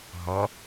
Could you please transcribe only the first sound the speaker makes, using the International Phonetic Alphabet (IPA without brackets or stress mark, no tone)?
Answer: ɦ